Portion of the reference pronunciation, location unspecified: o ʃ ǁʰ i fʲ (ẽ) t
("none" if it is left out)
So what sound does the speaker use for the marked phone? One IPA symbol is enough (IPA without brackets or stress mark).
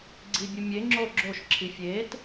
e